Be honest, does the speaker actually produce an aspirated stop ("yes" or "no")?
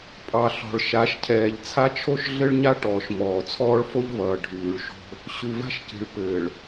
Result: yes